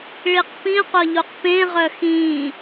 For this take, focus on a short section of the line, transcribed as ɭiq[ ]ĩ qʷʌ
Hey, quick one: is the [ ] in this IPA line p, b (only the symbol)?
p